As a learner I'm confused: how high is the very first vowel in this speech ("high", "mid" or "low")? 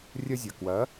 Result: low